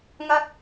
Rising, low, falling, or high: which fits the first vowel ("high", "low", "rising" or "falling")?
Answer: high